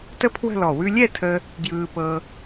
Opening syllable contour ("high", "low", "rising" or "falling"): high